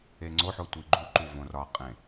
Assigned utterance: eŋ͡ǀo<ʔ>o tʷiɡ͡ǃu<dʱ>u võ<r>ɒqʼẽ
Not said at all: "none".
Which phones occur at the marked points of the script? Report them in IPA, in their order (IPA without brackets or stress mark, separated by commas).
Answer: ħ, ǃ, r